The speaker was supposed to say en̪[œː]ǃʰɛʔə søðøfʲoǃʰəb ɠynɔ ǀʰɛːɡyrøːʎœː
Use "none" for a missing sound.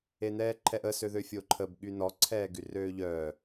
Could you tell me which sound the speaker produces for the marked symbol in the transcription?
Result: ɛː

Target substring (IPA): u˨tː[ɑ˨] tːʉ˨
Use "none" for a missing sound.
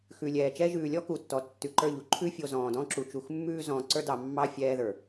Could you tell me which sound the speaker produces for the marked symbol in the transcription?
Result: ɔ˨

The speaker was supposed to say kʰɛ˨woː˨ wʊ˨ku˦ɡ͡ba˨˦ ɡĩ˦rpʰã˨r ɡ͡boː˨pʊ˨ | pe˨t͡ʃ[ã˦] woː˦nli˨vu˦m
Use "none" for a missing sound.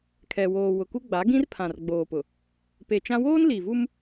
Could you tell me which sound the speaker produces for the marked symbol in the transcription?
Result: ã˦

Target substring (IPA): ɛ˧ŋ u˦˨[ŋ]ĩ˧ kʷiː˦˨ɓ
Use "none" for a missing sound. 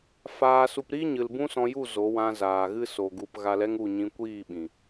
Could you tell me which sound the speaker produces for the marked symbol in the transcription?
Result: ɲ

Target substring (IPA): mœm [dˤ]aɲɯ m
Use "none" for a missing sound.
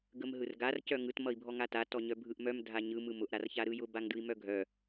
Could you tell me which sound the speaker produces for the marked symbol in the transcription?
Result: dʱ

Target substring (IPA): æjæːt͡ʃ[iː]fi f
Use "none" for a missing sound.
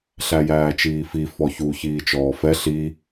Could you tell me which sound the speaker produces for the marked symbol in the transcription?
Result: iː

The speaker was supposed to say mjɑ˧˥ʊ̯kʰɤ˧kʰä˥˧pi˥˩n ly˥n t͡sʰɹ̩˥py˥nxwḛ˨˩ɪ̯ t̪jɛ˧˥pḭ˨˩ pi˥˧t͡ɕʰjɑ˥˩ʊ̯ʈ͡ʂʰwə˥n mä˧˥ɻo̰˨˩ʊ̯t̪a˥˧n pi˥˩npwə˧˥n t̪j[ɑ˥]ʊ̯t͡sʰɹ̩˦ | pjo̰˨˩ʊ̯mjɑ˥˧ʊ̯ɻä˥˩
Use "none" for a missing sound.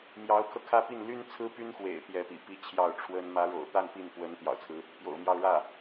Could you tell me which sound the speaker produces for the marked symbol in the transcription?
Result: ɑ̰˨˩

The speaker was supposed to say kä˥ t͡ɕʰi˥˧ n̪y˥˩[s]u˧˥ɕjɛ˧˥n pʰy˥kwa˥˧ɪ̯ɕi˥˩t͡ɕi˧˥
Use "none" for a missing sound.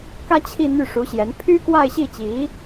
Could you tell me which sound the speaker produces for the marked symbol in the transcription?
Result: ʂ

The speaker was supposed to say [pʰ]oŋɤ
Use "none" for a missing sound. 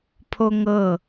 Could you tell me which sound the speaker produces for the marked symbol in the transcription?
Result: pʰ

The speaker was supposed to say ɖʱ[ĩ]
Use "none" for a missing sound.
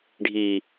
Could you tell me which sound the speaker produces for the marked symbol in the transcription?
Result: i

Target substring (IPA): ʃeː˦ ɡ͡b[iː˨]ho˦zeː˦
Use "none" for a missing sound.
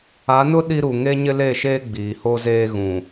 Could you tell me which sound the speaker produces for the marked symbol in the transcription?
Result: iː˨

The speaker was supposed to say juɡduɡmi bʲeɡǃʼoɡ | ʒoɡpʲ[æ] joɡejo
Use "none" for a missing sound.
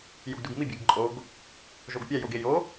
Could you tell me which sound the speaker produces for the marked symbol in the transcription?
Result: æ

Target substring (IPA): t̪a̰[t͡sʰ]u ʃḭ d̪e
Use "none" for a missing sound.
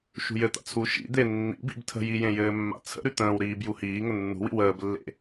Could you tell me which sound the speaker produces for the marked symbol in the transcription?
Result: t͡sʰ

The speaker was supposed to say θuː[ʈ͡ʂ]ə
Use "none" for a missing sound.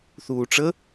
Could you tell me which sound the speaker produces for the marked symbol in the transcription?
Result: ʈ͡ʂ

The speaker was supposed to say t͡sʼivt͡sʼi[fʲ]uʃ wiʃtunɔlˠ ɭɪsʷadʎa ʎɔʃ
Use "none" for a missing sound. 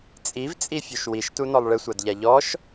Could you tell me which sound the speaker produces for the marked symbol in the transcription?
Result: fʲ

